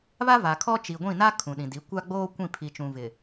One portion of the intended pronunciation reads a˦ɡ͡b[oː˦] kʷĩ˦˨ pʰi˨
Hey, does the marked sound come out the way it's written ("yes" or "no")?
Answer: yes